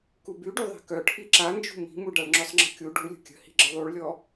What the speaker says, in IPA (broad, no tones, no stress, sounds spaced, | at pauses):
k u b y ɖ y ðˤ i̤ k œ ʈʰ i ǁ a n d͡ʒ ṳ m i̤ m u ɖ a ɭ ŋ͡ǁ ʊ sˤ ŋ͡ǁ ə̤ kʲ u ɖ u lʲ ə̤ kʲ ə̤ h i̤ ɡ͡ǁ ə ðˤ u ɭ lʲ ɔ